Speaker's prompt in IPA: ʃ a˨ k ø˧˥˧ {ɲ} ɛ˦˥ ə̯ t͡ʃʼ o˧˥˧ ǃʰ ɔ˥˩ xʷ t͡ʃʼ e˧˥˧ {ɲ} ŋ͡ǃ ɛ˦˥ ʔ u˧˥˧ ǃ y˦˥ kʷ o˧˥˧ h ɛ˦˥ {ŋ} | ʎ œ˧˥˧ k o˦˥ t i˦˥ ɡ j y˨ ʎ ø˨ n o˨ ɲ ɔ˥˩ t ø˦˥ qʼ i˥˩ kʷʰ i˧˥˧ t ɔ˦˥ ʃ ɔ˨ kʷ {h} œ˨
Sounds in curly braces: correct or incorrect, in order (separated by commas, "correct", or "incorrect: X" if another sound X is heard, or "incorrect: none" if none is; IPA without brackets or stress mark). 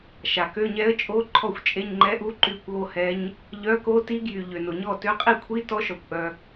correct, correct, incorrect: ɲ, incorrect: ʔ